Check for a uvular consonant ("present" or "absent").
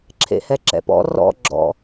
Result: absent